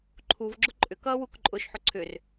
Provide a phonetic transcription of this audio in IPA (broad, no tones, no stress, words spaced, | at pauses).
ǃʰuvɡ͡ǁʊ ǃʼʏkʌːwuk ǃʼʊʃħʊ ǀʰʏr